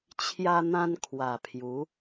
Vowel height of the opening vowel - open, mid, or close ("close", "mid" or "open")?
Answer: open